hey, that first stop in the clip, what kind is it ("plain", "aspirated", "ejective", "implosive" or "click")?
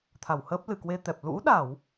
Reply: aspirated